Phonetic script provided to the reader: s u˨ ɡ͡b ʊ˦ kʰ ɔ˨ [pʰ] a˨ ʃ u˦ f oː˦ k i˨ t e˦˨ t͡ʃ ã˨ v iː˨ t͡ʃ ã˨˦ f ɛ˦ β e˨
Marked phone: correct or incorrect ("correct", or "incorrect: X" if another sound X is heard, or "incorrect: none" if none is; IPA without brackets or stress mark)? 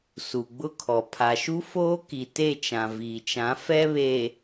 correct